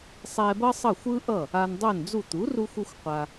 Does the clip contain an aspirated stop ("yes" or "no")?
no